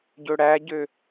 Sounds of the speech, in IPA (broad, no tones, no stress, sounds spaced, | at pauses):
ɟ ɵ ɽ æ ɟ ø